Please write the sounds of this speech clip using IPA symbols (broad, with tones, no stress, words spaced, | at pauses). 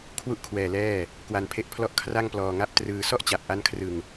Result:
kʰwu˥˩ʔkʰwɛː˧lɛː˥˩ | kwa˧npʰe˦˥ʔpʰlɔ˥˩ʔ kʰra˥˩ŋplɔː˧ŋa˥˩p̚ trɯː˧ sɔ˥˩ʔt͡ɕa˨˩p̚ ʔa˦˥nkʰrɯ˧ŋ